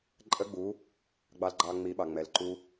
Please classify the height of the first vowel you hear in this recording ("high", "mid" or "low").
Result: mid